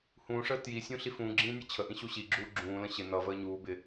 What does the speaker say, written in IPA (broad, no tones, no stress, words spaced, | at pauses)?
hũːʂəː tjisʲũ ɬifũːɡ͡ǁĩː nʲʌt͡ɕʰəʔĩ ɕuɕiɡ͡ǁuː ɡ͡ǁũːlə̃ ɕɪ nʌ vəːɲuːbɪ